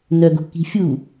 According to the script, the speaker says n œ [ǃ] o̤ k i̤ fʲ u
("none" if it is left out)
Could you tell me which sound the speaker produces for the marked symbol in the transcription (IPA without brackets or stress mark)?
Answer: ɡ